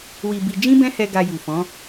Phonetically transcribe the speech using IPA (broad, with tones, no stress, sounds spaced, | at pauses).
w i˧ b i˧ d͡ʒ ĩ˦ b ɛ̃˦ h ɛ˧ ɡ a˧ j u˨ f ɔ̃˨˦